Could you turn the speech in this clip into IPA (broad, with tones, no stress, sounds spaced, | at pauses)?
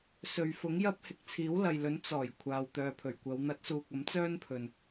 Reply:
s ɵ˨ ɥ f ʊ˨˥ ŋ j ɐ˥ p̚ h ɪ˧ k̚ t͡sʰ iː˨˥ w l ɐ˨ j l ɵ˨˥ n t͡s ɔː˨˩ j kʷʰ aː˨ w t̪ œː˨ pʰ ɵ˨˩ ɥ kʷ ɐ˨˧ w n̪ ɐ˨˥ t̚ s uː˨ k̚ ɐ˨˥ m t͡s œː˥ n pʰ ɵ˨ n